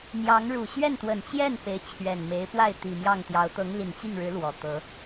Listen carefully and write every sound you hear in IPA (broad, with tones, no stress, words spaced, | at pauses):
n̪jɑ˧˥ŋ ɻu˨˩ɕɥɛ˥˩nt̪wə˨˩nt͡ɕjɛ˥˩n pe˧˥ɪ̯t͡ɕʰɥɛ˨˩nme˧˥ɪ̯pwa˥˩ɪ̯ t̪i˨˩mjɑ˥˩ŋt̪jɑ˧˥ʊ̯ t̪ɤ˧˥ŋli˨˩nt͡ɕi˥˩ŋɻɻ̩˧˥ lwɔ˨˩t̪ɤ˧˥